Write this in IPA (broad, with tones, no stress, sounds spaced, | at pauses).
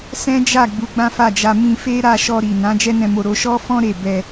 s ɛ̃˦ d͡ʒ a˦˨ ɡ͡b u˨˦ ɡ͡b ã˦ f a˦˨ d͡ʒ a˧ m ĩ˧ f e˦ ɾ a˦˨ ʃ ɔ˧ ɾ i˨ n ã˨˦ d͡ʒ ɛ˦ n ɛ̃˧ m o˧ ɾ o˧ ʃ ɔ˦ f ɔ̃˦ ɾ e˦˨ b ɛ˧